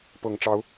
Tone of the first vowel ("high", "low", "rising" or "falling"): low